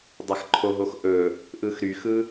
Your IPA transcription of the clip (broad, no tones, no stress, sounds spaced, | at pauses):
dˤ a x ǃʰ o ɦ o x ʔ ɵ | ʔ ɯ x ɾ y x ɯ